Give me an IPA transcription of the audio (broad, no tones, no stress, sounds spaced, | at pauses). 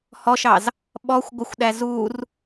h ɔ ʃ ɑ z | ɓ ɔ xʷ ɡʷ ə xʷ ɗ æ z u r